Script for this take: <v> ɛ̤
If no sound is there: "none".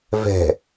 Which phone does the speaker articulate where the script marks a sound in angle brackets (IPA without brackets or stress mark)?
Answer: v